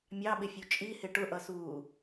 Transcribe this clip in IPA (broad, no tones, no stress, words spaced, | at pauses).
mʲɑɓɪfʲu t͡ʃʼihɪ ʈʊʔʌsuː